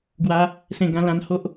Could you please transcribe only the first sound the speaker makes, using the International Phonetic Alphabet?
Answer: ɡ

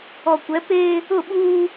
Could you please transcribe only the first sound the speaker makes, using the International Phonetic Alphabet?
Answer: ɔ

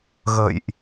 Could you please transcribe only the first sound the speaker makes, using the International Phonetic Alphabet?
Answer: ɣ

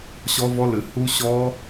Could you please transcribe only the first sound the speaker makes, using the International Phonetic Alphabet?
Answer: ɕ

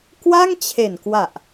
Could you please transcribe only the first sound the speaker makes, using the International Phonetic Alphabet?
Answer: k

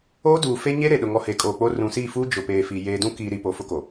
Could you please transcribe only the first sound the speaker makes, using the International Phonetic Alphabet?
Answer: oː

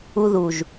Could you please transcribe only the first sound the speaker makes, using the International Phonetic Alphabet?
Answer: u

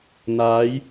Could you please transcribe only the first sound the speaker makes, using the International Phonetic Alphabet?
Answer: n̪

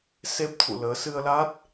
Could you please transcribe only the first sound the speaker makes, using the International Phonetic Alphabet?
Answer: s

